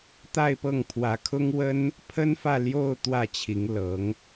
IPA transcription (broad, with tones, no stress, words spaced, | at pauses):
t̪a˥˧ɪ̯pɤ˥˩ŋpʰwä˧˥kʰʊ˥ŋ wə˥n | pʰə˥nfä˥˧ljo˥˧ʊ̯ t̪wä˥˩t͡ɕʰi˧˥ŋlɤ˧˥ŋ